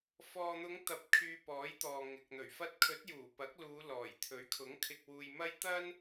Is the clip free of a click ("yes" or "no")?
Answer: yes